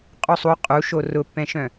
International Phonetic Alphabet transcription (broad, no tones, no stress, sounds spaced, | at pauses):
qʼ u sˤ u qʼ u ʃ o r ʊ pː ɛ̃ ʃ œ̃